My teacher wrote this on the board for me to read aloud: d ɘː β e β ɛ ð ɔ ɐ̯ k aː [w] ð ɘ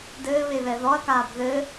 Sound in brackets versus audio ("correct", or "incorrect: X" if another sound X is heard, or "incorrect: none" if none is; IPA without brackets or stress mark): incorrect: b